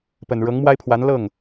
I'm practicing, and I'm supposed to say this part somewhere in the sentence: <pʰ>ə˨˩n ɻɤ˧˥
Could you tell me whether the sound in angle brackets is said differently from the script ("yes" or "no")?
yes